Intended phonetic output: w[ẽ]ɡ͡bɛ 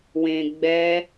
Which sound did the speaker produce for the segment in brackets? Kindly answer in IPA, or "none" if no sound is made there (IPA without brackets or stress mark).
ẽ